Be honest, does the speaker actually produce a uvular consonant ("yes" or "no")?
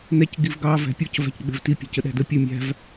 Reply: no